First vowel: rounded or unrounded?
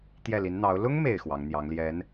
unrounded